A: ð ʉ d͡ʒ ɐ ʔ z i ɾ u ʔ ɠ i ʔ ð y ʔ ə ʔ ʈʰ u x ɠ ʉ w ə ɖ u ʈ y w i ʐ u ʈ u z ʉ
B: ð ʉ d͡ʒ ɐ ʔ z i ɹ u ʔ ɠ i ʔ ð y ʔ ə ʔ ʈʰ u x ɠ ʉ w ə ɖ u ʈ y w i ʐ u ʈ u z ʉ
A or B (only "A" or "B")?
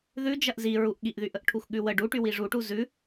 B